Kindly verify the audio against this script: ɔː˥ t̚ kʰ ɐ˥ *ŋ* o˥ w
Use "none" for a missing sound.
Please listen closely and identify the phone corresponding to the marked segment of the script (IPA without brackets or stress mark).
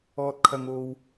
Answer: ŋ